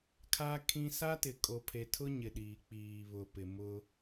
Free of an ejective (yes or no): no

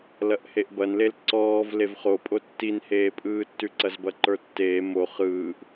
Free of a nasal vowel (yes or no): yes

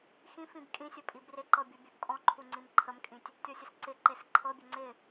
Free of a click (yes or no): no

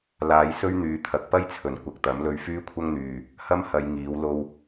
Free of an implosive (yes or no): yes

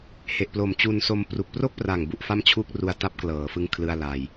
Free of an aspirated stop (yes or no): no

